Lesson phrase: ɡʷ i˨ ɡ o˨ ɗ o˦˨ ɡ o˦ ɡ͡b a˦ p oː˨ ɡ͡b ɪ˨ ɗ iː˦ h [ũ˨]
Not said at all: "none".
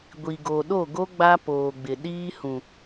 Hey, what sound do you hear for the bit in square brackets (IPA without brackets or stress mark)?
ũ˨